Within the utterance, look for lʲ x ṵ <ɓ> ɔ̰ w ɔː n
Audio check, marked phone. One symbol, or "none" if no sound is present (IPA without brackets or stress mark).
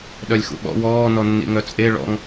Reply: ɓ